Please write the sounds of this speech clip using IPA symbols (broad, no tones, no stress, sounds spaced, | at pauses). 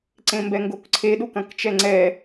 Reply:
ǀ ẽ m b ɛ ŋ ɡ o k ǀʰ e ɗ u k ɐ̃ k t͡ʃ ɛ ŋ͡ǀ ɛ